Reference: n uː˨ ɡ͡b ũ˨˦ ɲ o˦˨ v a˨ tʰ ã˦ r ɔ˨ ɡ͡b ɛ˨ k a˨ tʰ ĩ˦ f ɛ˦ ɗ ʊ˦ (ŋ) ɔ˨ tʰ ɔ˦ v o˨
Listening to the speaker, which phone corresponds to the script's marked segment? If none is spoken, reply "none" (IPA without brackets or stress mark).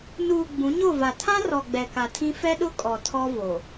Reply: kʼ